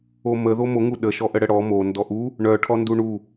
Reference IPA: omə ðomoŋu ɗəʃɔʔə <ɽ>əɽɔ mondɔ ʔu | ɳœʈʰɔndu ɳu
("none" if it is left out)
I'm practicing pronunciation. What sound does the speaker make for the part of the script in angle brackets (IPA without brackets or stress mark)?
ɽ